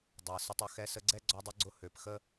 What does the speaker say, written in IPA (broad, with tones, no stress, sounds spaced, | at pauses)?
dˤ ɛ˨ s ʊ˧ tˤ ʊ˧ x ɛ˧ s ə˧ ɡ͡ǀ ɛ˦ ɡ͡ǀ ɔ˧ dˤ ʊ˧ ɡ͡ǀ ʊ˧ h ø˨ p x ə˦